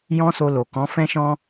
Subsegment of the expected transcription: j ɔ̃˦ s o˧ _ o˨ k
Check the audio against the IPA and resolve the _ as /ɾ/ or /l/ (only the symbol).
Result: l